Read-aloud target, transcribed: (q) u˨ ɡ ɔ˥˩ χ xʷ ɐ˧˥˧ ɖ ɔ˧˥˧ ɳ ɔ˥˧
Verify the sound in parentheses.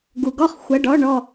incorrect: ɡ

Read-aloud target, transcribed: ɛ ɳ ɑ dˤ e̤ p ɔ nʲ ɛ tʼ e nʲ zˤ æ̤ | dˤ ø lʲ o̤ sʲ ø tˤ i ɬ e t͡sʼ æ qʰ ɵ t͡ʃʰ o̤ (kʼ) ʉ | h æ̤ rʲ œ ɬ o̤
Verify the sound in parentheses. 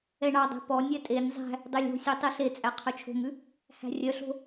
incorrect: ŋ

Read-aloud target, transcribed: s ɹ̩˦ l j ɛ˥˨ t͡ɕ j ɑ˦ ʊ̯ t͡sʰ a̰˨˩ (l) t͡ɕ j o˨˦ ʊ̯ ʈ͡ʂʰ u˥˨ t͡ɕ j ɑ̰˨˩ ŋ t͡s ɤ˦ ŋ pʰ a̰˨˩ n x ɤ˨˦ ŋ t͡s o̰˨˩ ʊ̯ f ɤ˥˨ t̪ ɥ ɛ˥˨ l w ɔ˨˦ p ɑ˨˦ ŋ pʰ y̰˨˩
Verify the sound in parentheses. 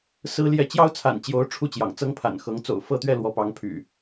incorrect: n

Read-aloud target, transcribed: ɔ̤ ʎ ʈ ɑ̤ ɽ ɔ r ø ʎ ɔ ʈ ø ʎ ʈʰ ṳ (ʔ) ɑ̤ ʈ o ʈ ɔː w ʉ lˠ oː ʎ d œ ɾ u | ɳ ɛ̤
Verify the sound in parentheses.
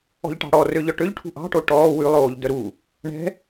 correct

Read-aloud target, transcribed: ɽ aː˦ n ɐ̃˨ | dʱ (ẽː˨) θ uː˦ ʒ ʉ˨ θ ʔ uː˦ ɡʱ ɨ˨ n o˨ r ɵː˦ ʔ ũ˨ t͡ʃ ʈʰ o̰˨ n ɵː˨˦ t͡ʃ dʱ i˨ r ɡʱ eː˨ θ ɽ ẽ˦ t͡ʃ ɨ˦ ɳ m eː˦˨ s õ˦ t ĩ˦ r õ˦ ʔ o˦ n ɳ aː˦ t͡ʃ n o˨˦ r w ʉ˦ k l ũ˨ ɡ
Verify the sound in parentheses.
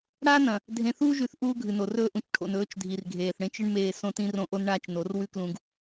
incorrect: ẽ˨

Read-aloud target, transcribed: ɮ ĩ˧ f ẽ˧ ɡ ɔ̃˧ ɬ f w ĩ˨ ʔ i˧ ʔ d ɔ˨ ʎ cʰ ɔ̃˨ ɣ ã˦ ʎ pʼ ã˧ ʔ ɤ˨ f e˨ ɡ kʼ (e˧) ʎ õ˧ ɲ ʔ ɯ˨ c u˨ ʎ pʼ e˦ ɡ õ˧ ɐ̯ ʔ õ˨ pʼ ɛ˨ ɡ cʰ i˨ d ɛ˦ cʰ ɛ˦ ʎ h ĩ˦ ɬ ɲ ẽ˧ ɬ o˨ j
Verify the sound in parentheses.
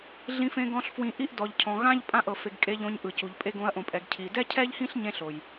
correct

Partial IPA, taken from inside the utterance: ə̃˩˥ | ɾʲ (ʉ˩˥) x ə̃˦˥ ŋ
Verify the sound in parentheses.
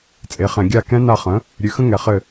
correct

